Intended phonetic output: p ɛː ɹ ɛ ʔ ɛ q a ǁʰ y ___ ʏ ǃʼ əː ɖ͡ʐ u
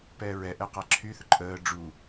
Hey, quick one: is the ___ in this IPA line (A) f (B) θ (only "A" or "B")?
B